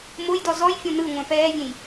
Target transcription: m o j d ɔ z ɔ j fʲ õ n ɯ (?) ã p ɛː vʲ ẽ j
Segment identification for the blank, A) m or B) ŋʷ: B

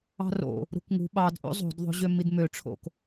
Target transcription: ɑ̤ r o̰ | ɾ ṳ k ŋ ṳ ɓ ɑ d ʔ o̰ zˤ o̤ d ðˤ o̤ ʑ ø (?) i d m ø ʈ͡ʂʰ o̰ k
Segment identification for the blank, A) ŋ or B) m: B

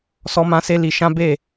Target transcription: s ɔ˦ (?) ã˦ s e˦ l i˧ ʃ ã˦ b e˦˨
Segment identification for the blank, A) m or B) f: A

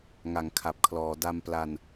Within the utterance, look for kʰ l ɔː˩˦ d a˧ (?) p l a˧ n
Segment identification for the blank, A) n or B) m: B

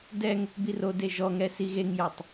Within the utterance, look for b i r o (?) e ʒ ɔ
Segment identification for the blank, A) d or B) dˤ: A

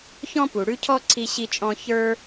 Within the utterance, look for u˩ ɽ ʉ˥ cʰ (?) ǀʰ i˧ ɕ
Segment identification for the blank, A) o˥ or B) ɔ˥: B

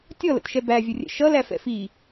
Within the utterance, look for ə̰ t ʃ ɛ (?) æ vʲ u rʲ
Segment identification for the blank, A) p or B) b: B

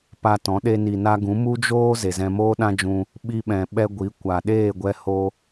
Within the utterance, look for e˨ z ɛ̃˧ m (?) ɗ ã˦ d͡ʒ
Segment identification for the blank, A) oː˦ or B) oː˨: A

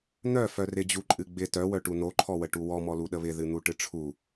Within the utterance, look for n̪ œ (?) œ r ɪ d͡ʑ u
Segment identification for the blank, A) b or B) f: B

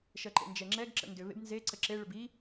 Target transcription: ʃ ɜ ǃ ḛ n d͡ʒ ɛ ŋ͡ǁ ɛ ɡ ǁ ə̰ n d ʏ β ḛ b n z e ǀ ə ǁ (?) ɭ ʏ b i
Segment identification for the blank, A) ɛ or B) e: B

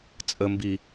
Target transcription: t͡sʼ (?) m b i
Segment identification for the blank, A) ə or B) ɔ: A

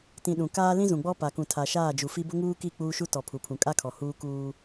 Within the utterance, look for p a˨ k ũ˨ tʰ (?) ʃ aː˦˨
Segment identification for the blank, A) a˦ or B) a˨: B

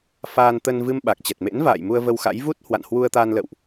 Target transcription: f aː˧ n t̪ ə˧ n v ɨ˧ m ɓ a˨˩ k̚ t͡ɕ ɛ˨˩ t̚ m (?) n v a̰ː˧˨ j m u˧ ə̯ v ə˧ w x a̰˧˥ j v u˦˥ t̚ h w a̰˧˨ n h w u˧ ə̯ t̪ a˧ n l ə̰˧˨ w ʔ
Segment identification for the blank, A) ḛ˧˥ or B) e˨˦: A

